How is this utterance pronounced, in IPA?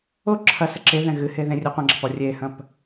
o ǁʰ ɐ s ɘ ǁ e ð ɛ̃ ɣ ɨ h e ð ẽ rʲ u qʷ ɐ̃ ɡ͡ǁ ɐ p ɔ rʲ e h ɐ̃ p

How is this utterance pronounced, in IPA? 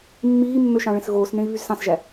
mː iː mː ø ʃ ɑ̃ ɭ ẽ s ɣ oː s n ẽ i̯ β y z s ɑ̃ s ʒ æ

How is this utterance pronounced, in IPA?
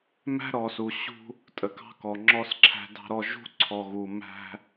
m æ̤˦ ɾ ɔ˨ s u˨ ɕ ṳ˦ | tʼ ə˨ k ɑ̤˦ k ɔ˨ ŋ͡ǁ ɔ˦ s ǁʰ æ̤˦ d ɑ̤˦ ɾ ɔ˦ ʒ ṳ˦ ǀʰ ɔ˨ ɣ u˨ m æ̤˦

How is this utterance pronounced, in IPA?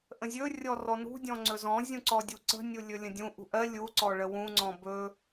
ʔ ə̃ zʲ ɵ rʲ ɔ r ɔ n ṳ dʲ ɔ̃ ŋ͡ǀ ɵ z ɔ̃ zʲ ũ ǀ ɔ dʲ u ǀ ə̤ nʲ u lʲ ɵ lʲ ə̃ dʲ ũ ʔ ṳ ʔ ɜ lʲ u ǀ ɔ ɭ ə w ũ ŋ͡ǀ ɔ̃ b ɵ

